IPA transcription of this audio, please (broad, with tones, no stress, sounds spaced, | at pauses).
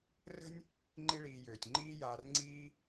r ə̤˥ nʲ | ŋ͡ǃ i˦ ɭ iː˨ j øː˩ tʲ ŋ͡ǃ iː˦ j aː˨ r ŋ͡ǀ iː˦